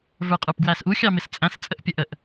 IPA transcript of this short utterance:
və˞qʼə˞pɡwæsʔu xʲɑmɪst͡sʼæ̃s t͡sʼəʔpʲəʔəʔ

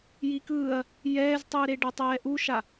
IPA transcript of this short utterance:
jikɯːɐ̯ | jɛːztˤɯːɾe ɖatˤɛːʔuʃa

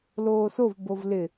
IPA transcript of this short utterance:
loːsov bovlɪ

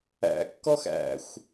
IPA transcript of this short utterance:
æ̰kːɔx æ̰xʷ

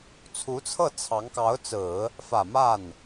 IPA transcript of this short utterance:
t͡sʰu˧˥t͡sʰɤ˥˩ t͡sʰɑ˧˥ŋkɑ˧˥ʊ̯t͡sɹ̩˨˩˦ | fä˨˩ma˥˩n

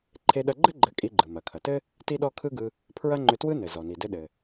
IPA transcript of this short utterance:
ǃʰe˧ɗɐ˧ɡ͡ǃɘ˥ ɡ͡ǃɘ˧kʼi˧ɡ͡ǃɯ˩ mɐ˩kʰɐ˩tɘ˥ | ti˥ɗɔ˥ kʰɯ˥ɡɯ˧ | pʰɹɐ˥ŋ͡ǃʏ˧twɯ˥ nɘ˩ zɔ˩ni˩dɘ˧ ɗɘ˩

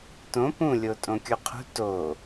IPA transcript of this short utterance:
tõ pũlʲo tʼõkʲuqʰṳ to

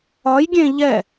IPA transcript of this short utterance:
ɒjɡʲẽ ʎɛ

